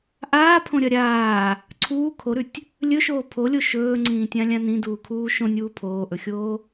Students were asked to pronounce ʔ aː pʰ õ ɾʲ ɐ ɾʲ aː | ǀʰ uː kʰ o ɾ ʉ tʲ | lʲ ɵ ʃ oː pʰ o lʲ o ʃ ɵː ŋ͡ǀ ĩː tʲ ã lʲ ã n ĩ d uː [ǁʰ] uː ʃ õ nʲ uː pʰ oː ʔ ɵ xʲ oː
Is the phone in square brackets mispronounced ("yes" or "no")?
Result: yes